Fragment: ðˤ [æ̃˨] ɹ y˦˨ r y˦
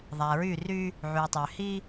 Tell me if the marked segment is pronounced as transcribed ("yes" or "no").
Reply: no